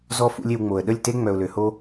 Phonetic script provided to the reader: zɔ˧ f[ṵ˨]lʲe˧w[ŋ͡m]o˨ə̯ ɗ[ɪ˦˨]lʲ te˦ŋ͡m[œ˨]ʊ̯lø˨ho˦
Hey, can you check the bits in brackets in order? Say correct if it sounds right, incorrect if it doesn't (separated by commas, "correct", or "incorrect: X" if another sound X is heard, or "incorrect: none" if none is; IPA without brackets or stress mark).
incorrect: ṵ˦, correct, incorrect: ə˦˨, correct